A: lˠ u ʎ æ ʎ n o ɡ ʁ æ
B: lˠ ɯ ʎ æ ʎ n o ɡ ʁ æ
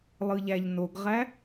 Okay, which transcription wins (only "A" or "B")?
B